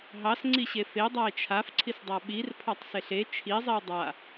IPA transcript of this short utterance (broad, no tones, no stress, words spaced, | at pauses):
ɦɑsŋ͡ǀiɕe fedˤae̯ t͡ʃʰafǀʰisdˤa ɓirpʰɑtˤseɬ e t͡ʃʰizˤio̯ dˤa